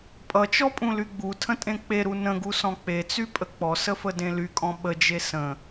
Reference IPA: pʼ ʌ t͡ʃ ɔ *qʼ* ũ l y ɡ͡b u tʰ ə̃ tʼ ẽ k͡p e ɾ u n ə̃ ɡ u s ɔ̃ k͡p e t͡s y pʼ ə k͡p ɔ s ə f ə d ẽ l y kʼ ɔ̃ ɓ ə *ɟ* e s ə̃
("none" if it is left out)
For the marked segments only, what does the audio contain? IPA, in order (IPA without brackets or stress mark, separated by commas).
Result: pʼ, d͡ʒ